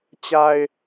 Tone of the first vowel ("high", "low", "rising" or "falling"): low